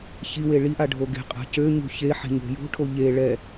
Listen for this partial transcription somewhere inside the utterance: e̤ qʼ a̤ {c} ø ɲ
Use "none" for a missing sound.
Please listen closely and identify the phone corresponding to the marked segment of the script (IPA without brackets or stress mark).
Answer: c